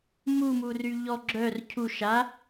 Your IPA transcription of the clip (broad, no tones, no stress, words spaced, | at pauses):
mumury ʎɔ ɡ͡ǁœr cʰu ʃa